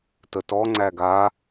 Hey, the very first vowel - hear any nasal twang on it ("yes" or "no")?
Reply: no